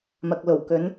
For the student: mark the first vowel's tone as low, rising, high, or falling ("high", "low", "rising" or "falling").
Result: low